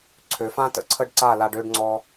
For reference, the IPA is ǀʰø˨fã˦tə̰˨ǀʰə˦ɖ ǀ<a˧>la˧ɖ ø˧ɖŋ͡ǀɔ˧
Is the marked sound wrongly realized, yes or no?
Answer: yes